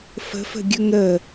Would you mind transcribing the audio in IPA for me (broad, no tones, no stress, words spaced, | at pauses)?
fə̤fə̤ɡʲɵŋ ɾə